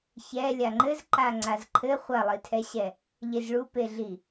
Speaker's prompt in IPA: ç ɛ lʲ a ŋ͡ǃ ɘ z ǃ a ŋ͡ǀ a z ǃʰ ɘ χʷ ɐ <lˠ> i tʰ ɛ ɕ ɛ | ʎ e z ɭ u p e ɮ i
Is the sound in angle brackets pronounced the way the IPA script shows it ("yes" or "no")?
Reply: yes